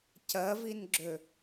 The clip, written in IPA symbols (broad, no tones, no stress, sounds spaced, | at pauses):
c ɜ v i n ɡ͡ǁ ø